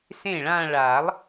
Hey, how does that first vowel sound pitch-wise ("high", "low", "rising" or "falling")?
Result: falling